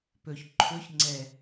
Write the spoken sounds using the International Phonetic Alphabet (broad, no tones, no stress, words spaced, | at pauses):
pɵç ǃʰɵç ŋ͡ǀɛ